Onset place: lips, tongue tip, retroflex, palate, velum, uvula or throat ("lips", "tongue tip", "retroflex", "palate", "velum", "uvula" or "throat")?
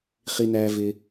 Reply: uvula